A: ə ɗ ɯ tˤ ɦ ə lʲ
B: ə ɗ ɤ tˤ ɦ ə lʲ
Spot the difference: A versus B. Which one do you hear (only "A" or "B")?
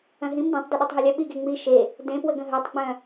B